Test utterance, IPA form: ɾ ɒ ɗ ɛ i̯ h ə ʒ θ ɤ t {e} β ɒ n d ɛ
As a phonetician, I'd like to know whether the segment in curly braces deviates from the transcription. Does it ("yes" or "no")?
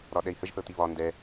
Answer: yes